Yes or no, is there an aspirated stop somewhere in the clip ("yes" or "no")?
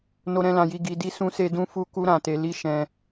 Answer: no